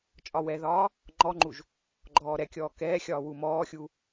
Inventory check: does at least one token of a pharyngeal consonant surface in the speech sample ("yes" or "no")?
no